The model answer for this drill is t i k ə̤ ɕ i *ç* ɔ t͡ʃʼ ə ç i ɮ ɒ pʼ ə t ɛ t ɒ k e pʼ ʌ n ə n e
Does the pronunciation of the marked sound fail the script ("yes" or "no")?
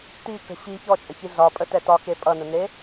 no